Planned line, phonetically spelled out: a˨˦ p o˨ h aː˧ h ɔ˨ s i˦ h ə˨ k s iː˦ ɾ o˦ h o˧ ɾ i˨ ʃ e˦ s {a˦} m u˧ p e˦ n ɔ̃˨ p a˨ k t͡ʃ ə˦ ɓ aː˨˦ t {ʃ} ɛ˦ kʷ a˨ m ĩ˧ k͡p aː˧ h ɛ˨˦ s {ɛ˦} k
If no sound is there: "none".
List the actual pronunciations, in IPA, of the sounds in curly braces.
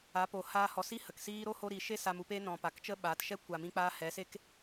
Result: a˧, ʃ, e˦

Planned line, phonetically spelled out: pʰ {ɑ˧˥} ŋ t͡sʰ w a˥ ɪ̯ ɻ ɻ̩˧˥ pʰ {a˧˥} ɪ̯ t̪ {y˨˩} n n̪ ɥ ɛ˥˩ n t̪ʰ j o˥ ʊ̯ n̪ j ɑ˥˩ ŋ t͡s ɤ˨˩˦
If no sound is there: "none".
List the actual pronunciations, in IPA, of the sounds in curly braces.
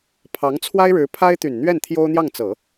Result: ɑ˧˥, a˥, y˨˩

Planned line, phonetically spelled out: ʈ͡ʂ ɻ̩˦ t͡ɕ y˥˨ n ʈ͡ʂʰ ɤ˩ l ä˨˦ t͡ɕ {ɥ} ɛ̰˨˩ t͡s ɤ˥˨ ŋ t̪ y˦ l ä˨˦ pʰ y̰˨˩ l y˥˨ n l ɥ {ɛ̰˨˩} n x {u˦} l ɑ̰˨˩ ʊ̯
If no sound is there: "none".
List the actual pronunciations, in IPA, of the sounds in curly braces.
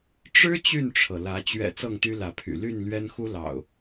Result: ɥ, ɛ˦, u˦

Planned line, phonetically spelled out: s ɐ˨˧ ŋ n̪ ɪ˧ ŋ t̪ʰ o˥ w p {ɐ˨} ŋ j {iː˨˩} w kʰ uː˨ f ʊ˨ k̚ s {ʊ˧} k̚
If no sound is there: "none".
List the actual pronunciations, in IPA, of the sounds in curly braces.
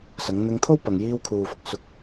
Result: ɐ˨, iː˧, ʊ˧

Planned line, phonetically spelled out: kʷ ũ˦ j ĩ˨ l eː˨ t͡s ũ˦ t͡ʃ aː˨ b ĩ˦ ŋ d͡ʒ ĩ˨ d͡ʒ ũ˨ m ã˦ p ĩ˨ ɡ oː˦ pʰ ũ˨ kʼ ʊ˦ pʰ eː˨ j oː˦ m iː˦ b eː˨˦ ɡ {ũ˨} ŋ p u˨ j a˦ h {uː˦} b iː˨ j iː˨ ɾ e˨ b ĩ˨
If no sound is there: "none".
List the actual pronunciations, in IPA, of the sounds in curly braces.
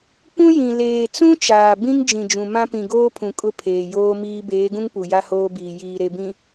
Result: ũ˦, oː˦

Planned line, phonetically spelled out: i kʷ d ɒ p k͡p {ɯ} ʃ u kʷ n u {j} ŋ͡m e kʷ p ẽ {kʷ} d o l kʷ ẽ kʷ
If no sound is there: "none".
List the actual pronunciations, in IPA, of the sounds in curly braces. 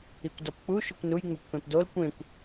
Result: u, j, p

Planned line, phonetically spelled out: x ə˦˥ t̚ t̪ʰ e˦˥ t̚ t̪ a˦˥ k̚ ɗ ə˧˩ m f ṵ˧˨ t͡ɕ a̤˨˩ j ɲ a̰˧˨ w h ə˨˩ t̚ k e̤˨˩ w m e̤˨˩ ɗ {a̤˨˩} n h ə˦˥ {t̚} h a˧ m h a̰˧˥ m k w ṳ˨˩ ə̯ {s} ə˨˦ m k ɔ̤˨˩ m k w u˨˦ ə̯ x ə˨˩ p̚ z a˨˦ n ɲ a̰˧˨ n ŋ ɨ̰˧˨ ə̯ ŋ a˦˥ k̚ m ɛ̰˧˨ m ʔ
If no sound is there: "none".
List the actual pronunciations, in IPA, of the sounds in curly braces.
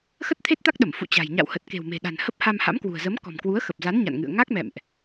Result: a̤˨˩, p̚, z

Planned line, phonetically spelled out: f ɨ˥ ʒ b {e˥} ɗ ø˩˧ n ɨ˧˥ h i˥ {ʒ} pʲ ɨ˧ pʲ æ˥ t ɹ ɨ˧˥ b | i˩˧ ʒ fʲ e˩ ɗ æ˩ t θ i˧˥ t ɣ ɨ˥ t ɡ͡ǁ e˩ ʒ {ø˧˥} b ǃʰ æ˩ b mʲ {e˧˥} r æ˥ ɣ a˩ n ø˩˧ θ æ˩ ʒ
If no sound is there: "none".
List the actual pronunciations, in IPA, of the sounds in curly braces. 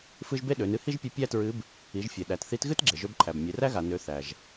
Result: e˥, ʒ, ø˧˥, e˩˧

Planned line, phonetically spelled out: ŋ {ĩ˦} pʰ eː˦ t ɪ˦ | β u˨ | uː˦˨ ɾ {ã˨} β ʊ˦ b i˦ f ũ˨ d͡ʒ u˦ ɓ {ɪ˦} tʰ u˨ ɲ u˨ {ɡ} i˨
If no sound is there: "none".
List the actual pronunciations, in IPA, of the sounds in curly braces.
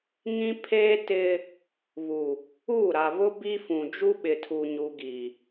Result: ĩ˦, a˨, ɪ˨, ɡ

